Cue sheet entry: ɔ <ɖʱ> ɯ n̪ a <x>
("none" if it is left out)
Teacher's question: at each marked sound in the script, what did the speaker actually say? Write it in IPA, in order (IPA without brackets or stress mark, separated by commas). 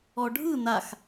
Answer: ɖʱ, x